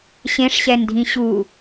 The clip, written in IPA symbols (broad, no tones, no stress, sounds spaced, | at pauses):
ɕ ẽ ʂ ɕ ɛ n dʱ ĩ ɕ u